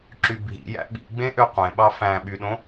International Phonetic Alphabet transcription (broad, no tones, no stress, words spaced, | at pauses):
ǁybʱḭjæ̰ ɓḭɡ͡bẽ ʔøqʷẽɓɑ fæ̃ ɓyɗõ